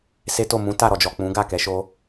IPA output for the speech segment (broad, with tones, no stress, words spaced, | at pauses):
se˦to˦˨ mũ˨˦ta˦˨ ɾɔ˨d͡ʒɔ˨ k͡pũ˨˦ɡa˦˨kɛ˨˦ ʃo˦